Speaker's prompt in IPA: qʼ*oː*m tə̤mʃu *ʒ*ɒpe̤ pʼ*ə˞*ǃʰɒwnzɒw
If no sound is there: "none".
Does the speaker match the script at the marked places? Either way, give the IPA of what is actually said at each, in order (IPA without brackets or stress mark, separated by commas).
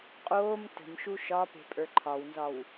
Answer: oː, ʃ, ə˞